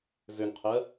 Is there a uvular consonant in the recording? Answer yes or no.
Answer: yes